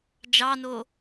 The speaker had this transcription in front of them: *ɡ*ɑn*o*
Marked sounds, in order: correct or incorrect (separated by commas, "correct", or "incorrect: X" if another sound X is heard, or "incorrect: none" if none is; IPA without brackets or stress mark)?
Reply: incorrect: d͡ʒ, correct